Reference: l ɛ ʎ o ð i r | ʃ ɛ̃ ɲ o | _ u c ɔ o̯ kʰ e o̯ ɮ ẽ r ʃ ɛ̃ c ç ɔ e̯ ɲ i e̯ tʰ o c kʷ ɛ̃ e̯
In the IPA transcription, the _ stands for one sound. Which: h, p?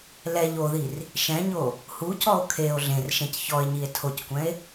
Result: h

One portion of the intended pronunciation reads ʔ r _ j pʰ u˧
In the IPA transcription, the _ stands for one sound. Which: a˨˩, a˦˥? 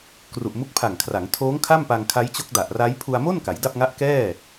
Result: a˦˥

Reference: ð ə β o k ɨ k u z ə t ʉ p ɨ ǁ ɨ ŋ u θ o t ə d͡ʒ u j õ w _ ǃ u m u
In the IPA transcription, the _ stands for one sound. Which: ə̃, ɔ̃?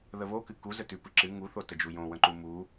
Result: ə̃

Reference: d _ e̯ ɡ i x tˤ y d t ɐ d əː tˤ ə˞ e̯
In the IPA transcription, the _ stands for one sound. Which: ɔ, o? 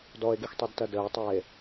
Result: ɔ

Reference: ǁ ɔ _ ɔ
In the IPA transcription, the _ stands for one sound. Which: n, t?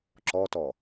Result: t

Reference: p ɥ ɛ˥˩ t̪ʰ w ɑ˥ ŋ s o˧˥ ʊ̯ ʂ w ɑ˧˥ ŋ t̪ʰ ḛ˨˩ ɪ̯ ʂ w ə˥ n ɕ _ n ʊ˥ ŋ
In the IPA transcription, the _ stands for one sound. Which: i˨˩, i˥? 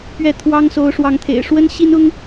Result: i˥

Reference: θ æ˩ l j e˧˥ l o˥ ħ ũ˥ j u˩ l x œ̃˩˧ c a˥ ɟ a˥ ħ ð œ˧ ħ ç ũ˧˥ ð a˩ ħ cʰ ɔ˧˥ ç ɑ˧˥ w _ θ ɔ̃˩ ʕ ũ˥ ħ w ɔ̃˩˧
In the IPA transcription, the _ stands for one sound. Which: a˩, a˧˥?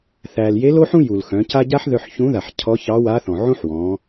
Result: a˧˥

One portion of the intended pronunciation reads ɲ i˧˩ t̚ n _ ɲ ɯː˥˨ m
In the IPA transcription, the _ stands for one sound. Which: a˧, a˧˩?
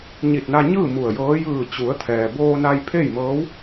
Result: a˧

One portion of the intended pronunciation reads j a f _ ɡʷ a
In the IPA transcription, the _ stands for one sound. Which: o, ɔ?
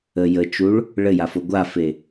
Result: o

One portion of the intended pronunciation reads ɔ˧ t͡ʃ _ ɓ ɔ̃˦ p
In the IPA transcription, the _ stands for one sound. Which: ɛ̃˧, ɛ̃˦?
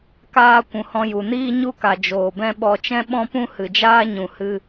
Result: ɛ̃˦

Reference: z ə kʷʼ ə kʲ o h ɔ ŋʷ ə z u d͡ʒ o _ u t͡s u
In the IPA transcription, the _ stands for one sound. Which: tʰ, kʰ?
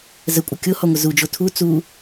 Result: tʰ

